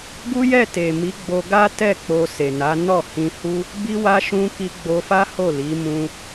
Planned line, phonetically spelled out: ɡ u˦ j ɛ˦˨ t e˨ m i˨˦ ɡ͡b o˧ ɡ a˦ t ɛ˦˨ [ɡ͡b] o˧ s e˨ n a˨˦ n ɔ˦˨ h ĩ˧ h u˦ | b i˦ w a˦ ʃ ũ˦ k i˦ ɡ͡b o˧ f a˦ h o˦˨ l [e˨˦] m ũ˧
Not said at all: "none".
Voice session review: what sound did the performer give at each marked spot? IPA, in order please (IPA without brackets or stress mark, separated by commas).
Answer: k͡p, i˨˦